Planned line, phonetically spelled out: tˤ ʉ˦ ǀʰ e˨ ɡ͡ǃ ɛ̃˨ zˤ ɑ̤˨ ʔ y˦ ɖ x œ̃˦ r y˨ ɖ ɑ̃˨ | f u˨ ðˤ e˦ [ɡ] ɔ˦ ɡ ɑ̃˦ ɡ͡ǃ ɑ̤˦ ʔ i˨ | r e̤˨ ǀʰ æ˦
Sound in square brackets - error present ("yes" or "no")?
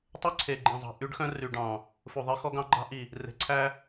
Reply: yes